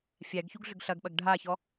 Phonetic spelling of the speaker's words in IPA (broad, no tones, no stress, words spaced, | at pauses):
fʲæɡçuɡɮʏɡ ɬɐɡɓɐɡ ɖʱaçɔ